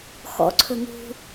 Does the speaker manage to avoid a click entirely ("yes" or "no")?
no